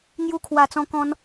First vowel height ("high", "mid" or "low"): high